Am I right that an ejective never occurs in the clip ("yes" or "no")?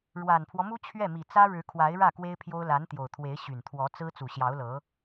yes